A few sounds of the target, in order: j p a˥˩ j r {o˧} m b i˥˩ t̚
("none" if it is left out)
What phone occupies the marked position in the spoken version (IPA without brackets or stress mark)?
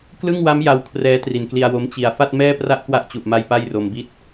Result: o˧